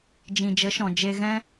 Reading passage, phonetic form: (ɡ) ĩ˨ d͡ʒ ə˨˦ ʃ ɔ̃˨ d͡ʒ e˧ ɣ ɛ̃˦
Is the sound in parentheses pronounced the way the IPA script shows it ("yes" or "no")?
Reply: no